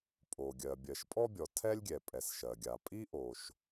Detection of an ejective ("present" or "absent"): present